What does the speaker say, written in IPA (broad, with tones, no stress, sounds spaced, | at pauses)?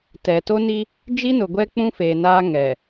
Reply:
t ɛ˨ t o˦ n i˦ | d͡ʒ i˦ n ʊ˨ ɡʷ ɛ˦ k͡p ũ˦ f e˨ n aː˦ ŋ ɛ˨